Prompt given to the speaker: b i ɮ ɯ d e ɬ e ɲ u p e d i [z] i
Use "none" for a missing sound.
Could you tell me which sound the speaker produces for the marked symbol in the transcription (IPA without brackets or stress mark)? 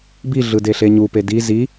z